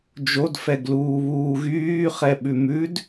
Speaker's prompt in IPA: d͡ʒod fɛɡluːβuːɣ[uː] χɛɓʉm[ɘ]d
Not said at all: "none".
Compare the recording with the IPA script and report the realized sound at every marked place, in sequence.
yː, ʉ

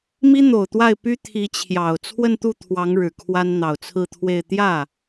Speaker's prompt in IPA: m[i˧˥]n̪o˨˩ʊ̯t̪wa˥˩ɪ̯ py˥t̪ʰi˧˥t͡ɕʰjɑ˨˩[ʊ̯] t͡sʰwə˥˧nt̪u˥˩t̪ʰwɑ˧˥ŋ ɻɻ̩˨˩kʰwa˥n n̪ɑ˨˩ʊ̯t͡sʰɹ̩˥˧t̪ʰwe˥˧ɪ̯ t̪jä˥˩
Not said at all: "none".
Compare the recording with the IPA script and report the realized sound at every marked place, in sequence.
i˥, ʊ̯

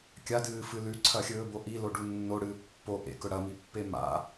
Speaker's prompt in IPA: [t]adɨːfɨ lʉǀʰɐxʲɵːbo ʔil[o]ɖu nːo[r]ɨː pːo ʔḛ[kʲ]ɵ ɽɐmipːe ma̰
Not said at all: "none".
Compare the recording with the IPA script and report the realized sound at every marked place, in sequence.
kʲ, o, ɽ, k

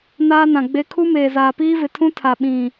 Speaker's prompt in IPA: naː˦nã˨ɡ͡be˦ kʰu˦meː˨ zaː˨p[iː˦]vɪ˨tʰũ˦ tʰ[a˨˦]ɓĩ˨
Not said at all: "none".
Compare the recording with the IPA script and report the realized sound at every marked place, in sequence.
iː˦, a˨

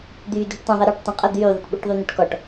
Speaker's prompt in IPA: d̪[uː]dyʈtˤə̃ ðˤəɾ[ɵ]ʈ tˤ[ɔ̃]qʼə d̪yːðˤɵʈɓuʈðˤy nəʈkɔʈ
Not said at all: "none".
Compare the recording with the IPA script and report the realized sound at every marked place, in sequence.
yː, ɔ, ə̃

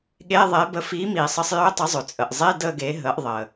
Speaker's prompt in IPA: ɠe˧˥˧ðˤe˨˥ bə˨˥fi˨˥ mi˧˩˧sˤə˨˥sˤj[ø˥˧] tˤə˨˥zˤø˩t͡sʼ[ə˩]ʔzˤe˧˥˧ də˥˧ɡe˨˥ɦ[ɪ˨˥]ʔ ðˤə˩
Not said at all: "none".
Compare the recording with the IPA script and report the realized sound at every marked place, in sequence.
ø˧˥˧, ə˩, ə˨˥

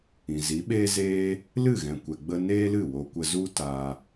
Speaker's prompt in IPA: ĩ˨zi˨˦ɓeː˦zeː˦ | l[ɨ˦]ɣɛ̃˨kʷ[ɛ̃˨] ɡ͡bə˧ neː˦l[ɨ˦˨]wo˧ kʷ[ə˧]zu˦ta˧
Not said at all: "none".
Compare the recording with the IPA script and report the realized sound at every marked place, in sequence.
ɨ˦˨, ɛ˨, ɨ˦˨, ə˧

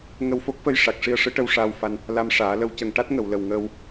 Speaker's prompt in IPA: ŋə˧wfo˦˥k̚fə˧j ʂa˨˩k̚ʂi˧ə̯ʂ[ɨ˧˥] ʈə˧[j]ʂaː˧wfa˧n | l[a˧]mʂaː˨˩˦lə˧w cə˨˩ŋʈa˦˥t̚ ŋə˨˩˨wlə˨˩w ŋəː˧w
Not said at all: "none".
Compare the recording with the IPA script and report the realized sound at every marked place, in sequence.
ɨ˧˥, w, a˧

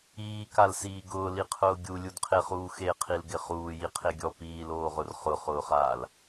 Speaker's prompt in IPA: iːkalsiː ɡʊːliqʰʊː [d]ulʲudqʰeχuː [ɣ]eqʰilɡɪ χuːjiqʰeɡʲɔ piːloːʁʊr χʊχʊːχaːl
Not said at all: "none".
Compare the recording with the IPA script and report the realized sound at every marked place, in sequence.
ɡʲ, x

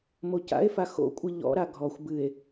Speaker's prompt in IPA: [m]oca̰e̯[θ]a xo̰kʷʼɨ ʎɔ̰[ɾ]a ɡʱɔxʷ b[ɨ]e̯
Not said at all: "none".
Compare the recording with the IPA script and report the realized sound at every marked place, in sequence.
m, f, ɾ, ɨ

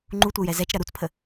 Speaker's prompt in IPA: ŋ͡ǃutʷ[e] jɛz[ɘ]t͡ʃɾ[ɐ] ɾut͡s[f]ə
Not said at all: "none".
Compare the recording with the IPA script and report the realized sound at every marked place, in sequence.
ɛ, ɛ, ɐ, pʰ

